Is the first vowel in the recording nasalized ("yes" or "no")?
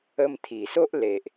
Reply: no